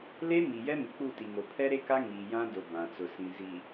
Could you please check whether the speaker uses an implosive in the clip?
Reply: no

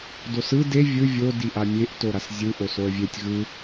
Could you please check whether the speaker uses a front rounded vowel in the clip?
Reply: no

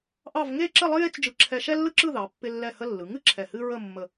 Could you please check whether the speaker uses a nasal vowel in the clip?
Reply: no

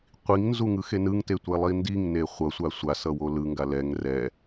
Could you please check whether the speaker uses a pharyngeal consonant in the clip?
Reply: no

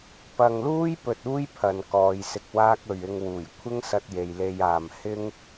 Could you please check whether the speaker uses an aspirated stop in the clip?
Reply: yes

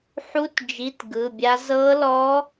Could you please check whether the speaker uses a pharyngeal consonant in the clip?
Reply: yes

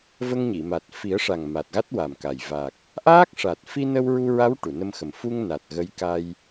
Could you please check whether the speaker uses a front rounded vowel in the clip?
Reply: no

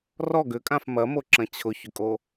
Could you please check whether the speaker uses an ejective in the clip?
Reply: yes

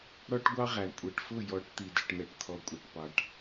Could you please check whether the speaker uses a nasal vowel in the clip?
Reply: no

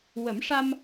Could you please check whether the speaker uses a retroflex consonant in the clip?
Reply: yes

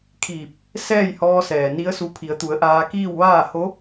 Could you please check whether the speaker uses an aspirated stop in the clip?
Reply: yes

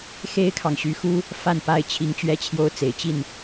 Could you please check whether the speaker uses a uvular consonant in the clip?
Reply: no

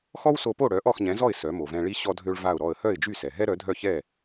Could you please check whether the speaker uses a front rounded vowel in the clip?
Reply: yes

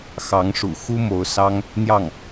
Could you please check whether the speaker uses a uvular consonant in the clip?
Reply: no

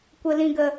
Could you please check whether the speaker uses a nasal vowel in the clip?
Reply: yes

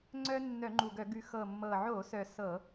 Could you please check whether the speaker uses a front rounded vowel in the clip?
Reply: yes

